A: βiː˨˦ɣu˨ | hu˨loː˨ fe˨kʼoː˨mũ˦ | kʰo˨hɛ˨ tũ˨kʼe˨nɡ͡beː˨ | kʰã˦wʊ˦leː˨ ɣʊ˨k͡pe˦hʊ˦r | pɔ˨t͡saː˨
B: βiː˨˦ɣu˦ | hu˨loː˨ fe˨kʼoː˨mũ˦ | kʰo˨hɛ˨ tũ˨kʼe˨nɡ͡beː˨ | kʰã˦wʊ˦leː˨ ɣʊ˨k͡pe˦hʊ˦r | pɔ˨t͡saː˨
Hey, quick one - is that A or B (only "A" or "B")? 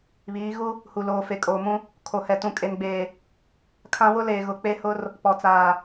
B